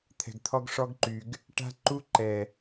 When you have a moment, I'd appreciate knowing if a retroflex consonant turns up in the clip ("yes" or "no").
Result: yes